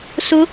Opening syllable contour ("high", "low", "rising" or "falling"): rising